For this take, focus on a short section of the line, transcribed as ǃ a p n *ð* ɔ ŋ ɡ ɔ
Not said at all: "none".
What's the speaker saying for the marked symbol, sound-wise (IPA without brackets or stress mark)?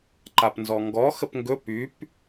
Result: z